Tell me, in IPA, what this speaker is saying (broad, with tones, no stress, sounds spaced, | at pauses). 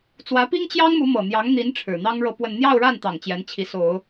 t͡s w ä˧˥ p i˥ ŋ t͡ɕ j ɑ˥ ŋ m u˧˥ m ɤ˨˩ n̪ j ɑ˧˥ ŋ n̪ i˧˥ n ʈ͡ʂʰ ɻ̩˨˩ n̪ ɑ˥ ŋ ɻ ɤ˥˧ p w ə˥˧ n n̪ j ɑ˥˧ ʊ̯ ɻ a˥˩ n t̪ ɑ˨˩ ŋ t͡ɕ j ɛ˧˥ n t͡ɕʰ i˧˥ s o˨˩˦ ʊ̯